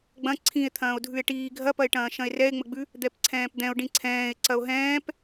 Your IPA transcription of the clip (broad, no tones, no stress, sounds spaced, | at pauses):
ɡ͡b ɐ̃ ǀʰ ĩ e̯ t̪ʰ ɐ̃ː o̯ dʱ ʉ e̯ ʈ iː ɡʱ ɐ p ɐ e̯ ʈ ɐ̃ː ʃ ɐ̃ e̯ r ɛ e̯ ŋ͡m ə ɡ͡b ʉ | d̪ ɛ p ǀʰ ɛ̃ː p d̪ ɛ̃ o̯ ɖ ĩ ǀʰ ɛ̃ː e̯ ǀ ɐ o̯ ɦ ɛ̃ː p